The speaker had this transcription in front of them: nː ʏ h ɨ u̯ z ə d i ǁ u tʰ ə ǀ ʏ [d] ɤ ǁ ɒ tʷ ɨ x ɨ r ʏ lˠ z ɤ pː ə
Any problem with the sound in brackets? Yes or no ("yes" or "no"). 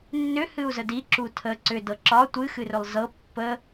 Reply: no